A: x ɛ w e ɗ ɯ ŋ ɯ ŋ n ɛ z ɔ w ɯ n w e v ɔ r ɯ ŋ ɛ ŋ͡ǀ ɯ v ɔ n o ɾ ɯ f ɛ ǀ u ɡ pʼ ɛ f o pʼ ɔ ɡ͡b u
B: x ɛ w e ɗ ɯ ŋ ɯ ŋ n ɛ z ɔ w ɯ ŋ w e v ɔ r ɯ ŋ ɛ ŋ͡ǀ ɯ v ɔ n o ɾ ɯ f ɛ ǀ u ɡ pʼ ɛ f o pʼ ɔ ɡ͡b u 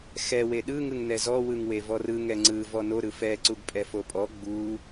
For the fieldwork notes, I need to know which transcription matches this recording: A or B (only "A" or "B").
B